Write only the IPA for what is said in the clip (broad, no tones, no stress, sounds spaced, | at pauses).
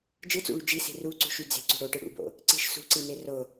d͡ʒ ɯ t͡s ṵ ɭ y d͡ʒ i s i̤ r u ǀ ṳ ʃ y d͡z e̤ ǀ ṳ ɽ o ʈ ɯ ɽ ṵ b o̰ | ǀ i̤ ʃ s ṳ ǀ i n e r o